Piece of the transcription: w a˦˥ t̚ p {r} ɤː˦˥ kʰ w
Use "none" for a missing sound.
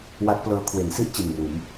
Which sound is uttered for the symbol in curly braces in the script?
l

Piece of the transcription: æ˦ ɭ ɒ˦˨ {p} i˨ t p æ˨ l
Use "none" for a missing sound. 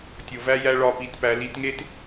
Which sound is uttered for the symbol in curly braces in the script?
p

